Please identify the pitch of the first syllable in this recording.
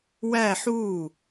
falling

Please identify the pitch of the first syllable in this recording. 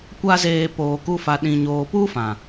high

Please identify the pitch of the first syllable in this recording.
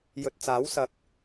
low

